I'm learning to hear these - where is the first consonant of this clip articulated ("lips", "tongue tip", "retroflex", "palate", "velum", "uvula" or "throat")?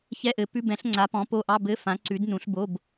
palate